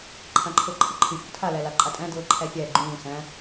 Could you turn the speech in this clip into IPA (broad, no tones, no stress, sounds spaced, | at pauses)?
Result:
ǃʰ ã ǃʰ ɤ ǃʰ ɤ ǃʰ ɨ fʲ o̰ tʰ a l æ l a ǃʼ a tʼ æ̃ d ɤː ǃʰ æ fʲ æ ɡ͡ǃ ũː s æ̃